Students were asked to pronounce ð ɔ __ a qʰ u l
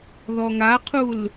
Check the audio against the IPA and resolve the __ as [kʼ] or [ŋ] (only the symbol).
ŋ